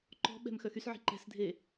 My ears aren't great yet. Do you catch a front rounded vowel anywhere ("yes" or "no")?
yes